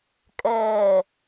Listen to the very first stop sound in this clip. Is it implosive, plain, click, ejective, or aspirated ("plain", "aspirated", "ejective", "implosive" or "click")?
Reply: ejective